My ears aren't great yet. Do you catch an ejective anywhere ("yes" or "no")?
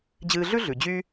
no